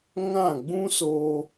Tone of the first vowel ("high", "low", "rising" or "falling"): falling